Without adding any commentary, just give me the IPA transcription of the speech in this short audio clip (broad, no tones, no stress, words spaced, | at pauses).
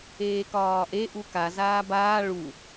eːkɒːʔe ʔuka zaːbaː ɭu